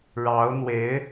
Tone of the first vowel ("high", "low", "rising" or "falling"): rising